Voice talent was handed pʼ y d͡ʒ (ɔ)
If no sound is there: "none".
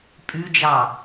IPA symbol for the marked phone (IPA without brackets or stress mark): ɑ